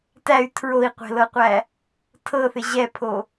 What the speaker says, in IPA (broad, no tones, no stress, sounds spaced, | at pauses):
t æ y̯ tʰ ɹ o i̯ qʷ ɛ̤ l ɤ qʷ æ | tʰ ɤ θ ɪ ʑ ɛ pʰ o